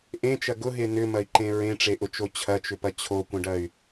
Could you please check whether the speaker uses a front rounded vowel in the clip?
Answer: yes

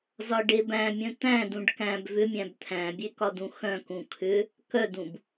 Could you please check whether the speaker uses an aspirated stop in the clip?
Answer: yes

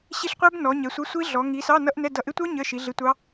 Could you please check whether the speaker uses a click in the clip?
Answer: no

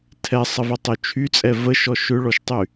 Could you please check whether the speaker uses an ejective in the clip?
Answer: yes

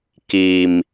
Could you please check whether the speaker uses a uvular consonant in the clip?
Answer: no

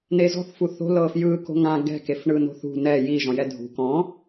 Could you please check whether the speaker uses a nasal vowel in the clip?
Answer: yes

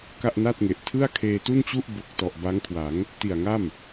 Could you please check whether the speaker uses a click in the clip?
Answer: no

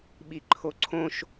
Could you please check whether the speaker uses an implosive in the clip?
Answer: yes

